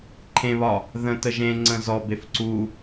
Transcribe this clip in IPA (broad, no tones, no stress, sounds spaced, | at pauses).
ǃʰ ẽ β ɒ | ð ə̃ t ə ʒ ẽ ŋ͡ǀ ə̃ z ɔ b e f ǀ u